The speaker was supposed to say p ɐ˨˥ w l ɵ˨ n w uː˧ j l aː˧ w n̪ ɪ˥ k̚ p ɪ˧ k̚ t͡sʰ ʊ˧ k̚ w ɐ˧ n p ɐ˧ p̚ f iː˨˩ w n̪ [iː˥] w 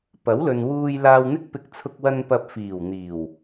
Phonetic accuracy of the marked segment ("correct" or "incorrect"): incorrect